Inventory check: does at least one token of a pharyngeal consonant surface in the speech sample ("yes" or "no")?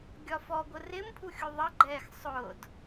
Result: no